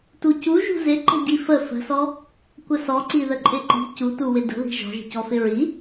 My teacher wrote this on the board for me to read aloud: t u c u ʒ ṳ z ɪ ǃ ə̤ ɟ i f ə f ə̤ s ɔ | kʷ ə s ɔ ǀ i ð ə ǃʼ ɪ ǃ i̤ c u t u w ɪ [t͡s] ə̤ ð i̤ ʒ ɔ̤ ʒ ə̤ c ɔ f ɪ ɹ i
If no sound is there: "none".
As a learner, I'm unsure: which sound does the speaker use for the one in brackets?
d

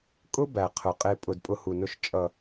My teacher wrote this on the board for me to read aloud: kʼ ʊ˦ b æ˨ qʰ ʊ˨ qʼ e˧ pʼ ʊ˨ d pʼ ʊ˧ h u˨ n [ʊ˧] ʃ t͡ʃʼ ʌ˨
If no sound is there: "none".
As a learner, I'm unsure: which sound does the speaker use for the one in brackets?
ʊ˧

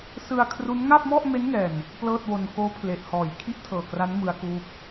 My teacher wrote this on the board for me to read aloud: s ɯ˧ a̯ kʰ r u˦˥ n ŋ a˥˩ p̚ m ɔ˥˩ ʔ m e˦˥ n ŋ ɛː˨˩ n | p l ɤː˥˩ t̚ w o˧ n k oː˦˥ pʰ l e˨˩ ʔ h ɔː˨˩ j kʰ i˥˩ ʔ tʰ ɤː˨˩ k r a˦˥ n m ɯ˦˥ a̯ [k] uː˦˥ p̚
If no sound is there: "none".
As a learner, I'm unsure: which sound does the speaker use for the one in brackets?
k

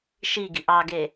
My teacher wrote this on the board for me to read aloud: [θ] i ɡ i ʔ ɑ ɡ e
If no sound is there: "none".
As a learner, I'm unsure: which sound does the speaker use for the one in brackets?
ʃ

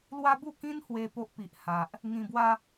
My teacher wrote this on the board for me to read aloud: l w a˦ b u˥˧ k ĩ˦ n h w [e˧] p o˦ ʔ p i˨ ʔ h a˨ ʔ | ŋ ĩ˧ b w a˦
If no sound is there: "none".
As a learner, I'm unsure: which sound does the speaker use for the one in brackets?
e˧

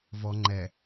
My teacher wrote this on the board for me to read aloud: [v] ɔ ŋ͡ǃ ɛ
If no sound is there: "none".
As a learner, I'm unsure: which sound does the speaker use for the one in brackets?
v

